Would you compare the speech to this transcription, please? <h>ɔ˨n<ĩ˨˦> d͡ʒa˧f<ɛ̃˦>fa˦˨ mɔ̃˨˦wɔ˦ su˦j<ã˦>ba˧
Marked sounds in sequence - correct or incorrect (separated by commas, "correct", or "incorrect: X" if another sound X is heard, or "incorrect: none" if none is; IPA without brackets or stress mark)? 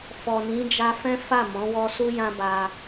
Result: incorrect: f, correct, correct, correct